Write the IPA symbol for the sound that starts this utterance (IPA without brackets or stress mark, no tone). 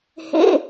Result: h